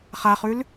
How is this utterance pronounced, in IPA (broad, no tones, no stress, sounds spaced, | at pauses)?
χ a χ ʉ l